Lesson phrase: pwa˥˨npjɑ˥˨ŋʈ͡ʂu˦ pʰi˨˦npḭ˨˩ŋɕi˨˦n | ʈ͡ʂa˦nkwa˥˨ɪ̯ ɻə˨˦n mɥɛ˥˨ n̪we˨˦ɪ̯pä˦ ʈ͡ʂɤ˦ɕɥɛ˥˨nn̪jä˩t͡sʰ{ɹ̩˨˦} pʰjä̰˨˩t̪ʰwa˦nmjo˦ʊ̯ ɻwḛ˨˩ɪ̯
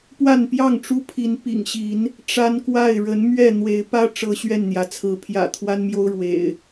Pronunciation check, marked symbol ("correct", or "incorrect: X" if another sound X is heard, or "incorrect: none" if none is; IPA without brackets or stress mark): correct